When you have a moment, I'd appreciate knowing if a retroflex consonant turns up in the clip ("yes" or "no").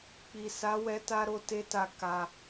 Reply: no